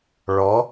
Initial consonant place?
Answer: retroflex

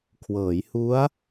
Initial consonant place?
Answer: velar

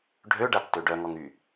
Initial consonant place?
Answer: retroflex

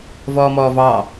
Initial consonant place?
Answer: labial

